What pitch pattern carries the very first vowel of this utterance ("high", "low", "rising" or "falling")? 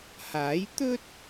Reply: rising